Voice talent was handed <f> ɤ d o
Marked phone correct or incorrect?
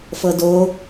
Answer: correct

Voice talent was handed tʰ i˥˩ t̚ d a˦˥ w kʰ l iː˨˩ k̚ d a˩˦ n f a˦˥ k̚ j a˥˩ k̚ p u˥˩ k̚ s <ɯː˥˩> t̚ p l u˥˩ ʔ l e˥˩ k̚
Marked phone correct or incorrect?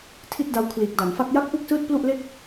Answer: correct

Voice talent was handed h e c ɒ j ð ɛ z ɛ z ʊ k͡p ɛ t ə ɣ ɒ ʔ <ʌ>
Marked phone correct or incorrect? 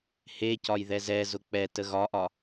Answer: incorrect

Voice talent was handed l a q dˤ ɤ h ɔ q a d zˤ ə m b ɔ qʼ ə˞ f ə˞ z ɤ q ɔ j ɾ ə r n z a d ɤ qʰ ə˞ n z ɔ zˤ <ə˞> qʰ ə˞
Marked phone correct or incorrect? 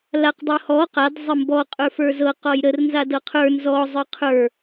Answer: correct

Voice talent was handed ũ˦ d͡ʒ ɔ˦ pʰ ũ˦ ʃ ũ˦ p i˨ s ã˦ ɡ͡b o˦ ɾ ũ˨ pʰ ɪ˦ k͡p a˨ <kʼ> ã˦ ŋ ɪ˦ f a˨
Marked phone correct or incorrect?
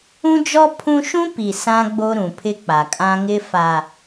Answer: correct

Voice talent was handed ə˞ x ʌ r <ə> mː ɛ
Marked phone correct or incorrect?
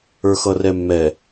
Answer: incorrect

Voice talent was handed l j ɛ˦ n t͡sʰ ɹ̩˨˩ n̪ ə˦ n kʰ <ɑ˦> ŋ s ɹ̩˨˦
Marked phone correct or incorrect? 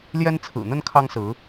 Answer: correct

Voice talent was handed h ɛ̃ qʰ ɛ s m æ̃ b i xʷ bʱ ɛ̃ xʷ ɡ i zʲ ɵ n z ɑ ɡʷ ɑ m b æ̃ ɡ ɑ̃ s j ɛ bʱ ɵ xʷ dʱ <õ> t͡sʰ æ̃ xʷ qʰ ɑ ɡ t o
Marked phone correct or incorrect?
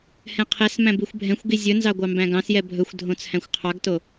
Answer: correct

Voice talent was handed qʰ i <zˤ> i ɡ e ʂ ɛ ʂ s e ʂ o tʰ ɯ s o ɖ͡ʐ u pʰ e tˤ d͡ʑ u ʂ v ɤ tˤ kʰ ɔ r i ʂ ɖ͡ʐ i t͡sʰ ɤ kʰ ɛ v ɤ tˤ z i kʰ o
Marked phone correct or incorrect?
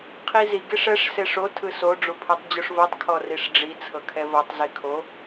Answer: incorrect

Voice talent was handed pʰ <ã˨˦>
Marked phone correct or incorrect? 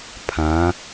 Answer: correct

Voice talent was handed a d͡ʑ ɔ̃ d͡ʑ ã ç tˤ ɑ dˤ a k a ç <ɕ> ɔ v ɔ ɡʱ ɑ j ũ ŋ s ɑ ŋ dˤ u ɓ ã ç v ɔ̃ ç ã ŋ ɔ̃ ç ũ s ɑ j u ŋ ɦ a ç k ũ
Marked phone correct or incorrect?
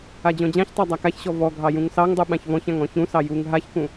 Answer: correct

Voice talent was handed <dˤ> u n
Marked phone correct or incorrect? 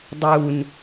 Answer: correct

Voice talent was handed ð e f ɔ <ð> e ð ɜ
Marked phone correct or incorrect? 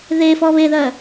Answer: incorrect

